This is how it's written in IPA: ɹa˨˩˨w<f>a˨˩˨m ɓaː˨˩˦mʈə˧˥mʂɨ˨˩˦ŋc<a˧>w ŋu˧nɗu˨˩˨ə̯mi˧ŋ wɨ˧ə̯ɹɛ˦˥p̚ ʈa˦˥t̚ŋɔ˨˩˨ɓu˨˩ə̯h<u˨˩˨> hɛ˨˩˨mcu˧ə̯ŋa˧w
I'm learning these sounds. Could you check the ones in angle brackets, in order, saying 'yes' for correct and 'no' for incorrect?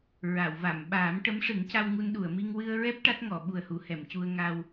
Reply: no, yes, yes

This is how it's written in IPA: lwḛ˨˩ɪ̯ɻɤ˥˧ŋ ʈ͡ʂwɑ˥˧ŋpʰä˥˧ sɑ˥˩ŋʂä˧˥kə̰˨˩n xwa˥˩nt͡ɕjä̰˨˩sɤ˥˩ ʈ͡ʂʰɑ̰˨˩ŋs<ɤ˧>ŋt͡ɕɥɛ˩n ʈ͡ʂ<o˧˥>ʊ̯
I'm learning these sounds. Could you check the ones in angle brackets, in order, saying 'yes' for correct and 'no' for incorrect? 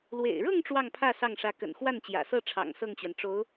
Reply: no, yes

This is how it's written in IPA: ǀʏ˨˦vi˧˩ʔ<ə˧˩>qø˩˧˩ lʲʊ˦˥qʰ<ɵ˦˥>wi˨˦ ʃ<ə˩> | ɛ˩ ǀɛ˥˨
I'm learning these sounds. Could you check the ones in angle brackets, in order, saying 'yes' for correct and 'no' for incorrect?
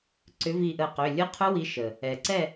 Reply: yes, no, yes

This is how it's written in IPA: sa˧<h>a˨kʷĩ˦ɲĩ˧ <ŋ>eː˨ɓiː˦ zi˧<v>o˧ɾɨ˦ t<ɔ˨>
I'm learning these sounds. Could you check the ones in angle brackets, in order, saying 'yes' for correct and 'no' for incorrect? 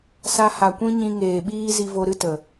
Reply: yes, yes, yes, no

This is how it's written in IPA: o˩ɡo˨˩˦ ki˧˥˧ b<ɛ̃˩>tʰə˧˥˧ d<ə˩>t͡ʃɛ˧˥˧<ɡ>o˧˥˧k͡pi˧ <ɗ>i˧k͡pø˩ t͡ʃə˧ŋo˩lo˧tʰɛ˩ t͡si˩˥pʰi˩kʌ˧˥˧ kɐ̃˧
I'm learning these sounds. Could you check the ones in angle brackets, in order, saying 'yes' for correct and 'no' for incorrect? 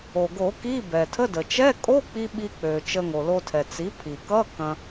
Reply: no, yes, no, no

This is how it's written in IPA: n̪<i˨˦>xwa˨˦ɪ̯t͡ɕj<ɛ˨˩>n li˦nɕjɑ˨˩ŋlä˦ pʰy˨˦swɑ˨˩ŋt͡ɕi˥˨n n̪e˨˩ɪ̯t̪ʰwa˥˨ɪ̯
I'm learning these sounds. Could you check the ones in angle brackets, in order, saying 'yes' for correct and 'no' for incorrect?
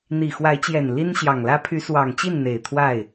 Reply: no, yes

